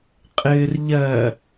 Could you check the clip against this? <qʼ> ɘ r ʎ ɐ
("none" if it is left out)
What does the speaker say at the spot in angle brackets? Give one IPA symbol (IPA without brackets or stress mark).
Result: qʼ